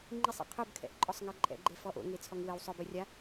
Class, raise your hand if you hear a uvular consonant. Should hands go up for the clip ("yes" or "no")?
yes